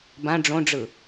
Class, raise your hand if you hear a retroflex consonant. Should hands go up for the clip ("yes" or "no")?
yes